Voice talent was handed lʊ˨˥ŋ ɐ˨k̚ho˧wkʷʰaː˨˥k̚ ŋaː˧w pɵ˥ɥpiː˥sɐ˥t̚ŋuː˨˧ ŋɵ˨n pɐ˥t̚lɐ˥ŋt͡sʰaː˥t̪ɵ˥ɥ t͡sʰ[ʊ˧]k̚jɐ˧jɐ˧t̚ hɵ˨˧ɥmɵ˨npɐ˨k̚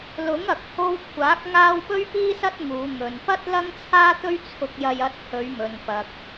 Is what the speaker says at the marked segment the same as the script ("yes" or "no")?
yes